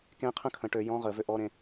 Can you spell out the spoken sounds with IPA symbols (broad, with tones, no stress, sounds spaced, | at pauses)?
k ẽ˥ qʰ ə̃˥ kʰ ə̃˨˦ ʈ ø˨˦ j ɔ̃˧˥˧ ʁ ə˨˩˦ v ø˦˨ ʔ ɔ˧˥˧ ɾ ẽ˨˦